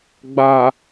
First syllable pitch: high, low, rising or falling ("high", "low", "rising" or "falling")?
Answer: low